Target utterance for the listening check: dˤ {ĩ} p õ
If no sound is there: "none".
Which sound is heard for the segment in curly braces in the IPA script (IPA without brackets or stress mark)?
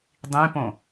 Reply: ĩ